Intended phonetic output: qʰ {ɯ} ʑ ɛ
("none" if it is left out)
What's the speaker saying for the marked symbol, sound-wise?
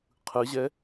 ɯ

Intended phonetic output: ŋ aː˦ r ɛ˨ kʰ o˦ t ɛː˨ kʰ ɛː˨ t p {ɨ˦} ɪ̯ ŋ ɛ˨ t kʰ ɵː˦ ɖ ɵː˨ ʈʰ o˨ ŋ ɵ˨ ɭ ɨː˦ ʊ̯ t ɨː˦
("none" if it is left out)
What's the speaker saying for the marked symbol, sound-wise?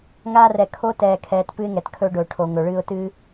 ɨ˦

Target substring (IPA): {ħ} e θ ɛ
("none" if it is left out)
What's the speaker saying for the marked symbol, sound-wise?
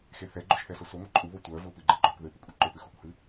x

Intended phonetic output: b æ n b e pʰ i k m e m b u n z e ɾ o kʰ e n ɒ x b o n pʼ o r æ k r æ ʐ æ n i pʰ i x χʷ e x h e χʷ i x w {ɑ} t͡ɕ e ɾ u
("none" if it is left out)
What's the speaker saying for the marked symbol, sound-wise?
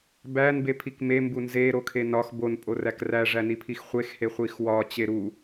ɒ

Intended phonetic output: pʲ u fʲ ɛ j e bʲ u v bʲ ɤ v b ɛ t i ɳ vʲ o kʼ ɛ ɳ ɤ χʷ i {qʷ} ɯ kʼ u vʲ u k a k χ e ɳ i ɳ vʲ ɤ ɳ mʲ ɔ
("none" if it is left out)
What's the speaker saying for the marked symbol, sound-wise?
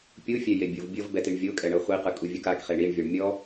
q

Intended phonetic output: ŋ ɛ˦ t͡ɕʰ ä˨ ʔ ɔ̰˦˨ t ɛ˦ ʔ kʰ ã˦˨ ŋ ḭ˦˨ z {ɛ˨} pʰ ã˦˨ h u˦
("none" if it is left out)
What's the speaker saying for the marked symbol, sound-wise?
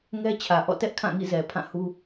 ɛ˨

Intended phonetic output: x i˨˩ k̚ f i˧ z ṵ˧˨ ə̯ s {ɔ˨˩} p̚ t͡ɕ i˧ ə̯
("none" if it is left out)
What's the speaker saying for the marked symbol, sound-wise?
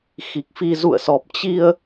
ɔ˨˩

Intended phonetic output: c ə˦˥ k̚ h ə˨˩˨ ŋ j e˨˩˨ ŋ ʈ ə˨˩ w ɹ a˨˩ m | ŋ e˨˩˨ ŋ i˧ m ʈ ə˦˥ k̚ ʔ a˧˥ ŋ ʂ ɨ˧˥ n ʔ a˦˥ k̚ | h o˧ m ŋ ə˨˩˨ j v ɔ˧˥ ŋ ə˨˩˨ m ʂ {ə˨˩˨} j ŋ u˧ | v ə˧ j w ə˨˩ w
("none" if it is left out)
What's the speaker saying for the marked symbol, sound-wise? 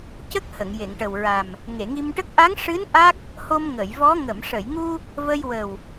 ə˨˩˨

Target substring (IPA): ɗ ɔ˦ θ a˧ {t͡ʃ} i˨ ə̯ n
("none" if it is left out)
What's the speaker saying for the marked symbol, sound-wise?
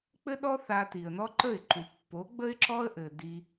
t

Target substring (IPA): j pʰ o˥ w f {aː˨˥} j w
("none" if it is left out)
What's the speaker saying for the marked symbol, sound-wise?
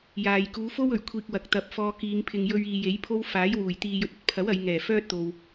aː˨˥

